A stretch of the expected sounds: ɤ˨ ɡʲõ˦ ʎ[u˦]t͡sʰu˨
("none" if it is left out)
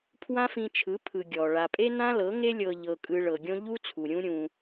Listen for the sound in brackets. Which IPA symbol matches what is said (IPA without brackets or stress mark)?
u˦